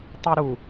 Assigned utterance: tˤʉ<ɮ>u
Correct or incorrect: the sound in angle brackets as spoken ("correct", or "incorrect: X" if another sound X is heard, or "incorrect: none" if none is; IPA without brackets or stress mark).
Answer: incorrect: ɾ